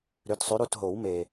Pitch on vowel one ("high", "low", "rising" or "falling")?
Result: rising